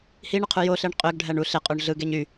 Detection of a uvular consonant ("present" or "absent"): present